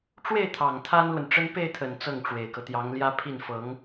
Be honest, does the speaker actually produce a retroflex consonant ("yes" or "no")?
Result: yes